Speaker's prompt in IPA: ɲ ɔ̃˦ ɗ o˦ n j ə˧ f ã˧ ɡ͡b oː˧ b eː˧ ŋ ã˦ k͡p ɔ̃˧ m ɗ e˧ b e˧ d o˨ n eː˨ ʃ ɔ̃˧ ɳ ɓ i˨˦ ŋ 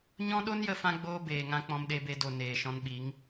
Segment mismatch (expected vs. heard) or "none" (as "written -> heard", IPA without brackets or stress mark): ɳ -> n